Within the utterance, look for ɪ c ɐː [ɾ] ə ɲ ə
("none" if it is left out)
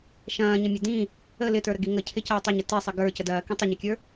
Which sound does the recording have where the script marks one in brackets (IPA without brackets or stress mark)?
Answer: tˤ